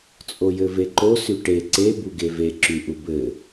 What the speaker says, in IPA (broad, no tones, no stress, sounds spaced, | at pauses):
t͡sʼ o j ɘ v e ǃ o s y ʈ e ǀ e b u ɡ e v e ǁ y ʔ u b ɘ